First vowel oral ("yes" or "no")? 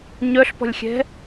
yes